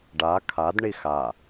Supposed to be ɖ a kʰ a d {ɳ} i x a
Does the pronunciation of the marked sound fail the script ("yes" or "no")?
no